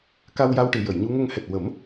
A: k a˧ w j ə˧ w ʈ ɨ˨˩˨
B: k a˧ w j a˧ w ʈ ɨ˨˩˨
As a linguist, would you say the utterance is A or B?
B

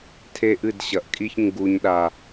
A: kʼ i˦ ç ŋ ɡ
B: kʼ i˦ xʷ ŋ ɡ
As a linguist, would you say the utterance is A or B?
A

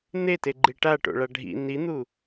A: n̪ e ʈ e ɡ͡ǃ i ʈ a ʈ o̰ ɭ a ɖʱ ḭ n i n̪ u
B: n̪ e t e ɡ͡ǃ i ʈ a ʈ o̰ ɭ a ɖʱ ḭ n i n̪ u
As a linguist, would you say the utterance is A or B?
B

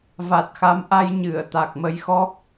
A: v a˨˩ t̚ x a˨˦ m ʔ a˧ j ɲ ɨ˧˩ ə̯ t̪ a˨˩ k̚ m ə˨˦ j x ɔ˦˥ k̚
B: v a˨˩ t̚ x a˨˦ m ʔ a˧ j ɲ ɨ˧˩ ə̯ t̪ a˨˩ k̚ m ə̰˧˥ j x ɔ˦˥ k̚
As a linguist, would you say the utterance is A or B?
A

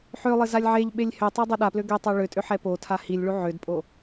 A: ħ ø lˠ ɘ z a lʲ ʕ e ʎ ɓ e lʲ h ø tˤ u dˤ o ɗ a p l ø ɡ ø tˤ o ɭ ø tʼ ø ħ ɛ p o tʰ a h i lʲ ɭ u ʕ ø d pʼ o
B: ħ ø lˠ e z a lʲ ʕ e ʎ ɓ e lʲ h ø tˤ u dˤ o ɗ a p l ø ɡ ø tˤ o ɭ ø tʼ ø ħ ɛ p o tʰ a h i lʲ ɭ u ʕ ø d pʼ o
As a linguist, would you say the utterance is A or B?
A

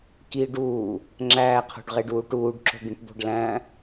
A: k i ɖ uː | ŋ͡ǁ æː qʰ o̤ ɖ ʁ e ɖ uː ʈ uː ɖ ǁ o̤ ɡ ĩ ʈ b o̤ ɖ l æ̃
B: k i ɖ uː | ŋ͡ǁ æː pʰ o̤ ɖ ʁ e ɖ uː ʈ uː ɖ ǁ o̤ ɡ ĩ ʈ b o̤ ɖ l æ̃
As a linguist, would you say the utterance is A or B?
A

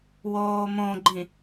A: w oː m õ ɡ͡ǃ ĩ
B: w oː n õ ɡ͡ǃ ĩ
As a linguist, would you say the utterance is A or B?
A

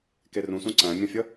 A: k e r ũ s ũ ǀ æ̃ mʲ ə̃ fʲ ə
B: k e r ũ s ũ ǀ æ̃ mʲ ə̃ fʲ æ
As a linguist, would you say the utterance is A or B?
A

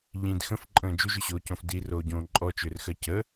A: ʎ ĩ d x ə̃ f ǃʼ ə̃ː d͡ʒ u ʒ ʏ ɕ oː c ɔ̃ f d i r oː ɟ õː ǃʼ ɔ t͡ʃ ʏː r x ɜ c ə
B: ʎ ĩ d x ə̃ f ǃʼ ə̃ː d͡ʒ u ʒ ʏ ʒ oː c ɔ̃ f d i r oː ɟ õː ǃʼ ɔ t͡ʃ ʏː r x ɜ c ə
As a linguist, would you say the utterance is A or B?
A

